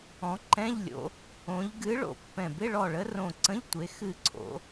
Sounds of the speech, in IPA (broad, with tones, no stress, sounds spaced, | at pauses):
ɔ̃˩˧ ǃ ɛ̃˧˥˧ ʎ lʲ o̰˩˧ | õ˩˧ ʎ ɡ ɨ˨˥ ɭ o̰˧˩ pː ɛ̃˧˩ b ɪ˧˥˧ ɭ ɔ˧˩ ɭ ə˨˥ r õ˧˩ ǀ ə̃˧˥˧ ʎ tʷ e˩˧ x ɨ˧˩ ǀʰ o̰˩˧